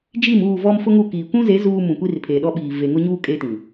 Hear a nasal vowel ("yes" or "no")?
yes